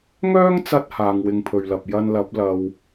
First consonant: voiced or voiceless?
voiced